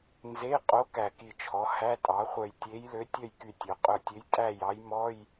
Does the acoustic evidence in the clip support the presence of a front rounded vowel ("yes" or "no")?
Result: yes